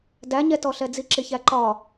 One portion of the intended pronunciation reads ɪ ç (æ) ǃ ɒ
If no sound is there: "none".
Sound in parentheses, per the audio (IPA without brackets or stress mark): æ